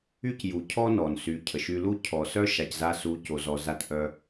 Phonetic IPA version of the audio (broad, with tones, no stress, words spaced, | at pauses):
y˦cju˨cʰɔ˦ nɔ˨nsy˨˦cʰə˨ʃy˧ lu˦ cʰɔ˨sœ˦ ʃa˨cza˧su˨˦ co˨zɔ˨ za˧tʔœ˧